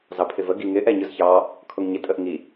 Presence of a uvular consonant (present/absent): absent